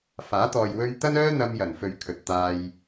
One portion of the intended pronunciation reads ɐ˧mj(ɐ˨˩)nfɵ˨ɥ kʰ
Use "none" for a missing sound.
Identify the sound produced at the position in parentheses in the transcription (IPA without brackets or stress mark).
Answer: ɐ˨˩